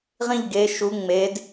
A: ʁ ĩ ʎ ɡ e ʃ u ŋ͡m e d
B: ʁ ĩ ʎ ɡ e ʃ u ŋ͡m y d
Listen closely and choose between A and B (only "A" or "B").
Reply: A